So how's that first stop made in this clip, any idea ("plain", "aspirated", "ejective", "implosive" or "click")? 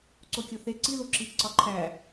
click